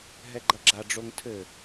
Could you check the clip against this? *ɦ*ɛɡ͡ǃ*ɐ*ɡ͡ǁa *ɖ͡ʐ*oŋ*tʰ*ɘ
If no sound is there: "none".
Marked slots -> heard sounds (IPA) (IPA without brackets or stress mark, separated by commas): ɦ, ɐ, ɖ͡ʐ, tʰ